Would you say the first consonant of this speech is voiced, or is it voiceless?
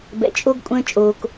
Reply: voiced